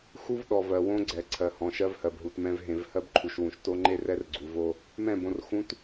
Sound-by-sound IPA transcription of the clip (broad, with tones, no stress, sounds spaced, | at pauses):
x u˦ v ɗ ɔ˨ v ɜ˨ w õ˦ ɡ͡ǀ ɛ˨ ǀʰ ɜ˨ h ɔ̃˨ ʃ ɜ˦ v h ɜ˨ b ɦ u˨ t m ɛ̃˦ v ɦ ẽ˨ v h ɜ˦ b ǃʰ u˨ ʃ w ũ˨ ʃ t o˦ ŋ͡ǃ e˦ r ɛ˦ r ɡ͡ǀ u˨ v o˦ | m ɛ̃˦˨ b õ˨ r x ũ˨ t